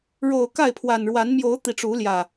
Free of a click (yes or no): yes